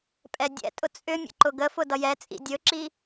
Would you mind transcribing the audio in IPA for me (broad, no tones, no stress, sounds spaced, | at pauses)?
pʼ ɛ dʲ ɛ̰ tʼ ʊ t͡sʼ ʏ mʲ ə̰ ǃ ʊ ɡ ə f ʊ d ʌ j ɛ t͡sʼ ḭ dʲ ɵ ǁ i